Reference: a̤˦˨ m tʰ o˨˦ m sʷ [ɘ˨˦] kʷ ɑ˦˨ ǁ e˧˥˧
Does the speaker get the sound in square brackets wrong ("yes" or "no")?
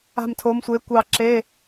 yes